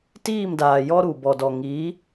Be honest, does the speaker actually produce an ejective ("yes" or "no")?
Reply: no